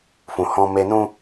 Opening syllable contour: low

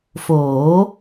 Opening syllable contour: rising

